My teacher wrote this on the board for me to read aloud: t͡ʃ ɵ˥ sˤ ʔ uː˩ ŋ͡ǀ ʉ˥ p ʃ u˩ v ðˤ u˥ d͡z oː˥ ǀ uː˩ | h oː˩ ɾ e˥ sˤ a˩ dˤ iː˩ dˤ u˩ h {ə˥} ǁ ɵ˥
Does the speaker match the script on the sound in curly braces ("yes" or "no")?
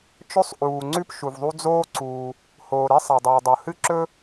no